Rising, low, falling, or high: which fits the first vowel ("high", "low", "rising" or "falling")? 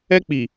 high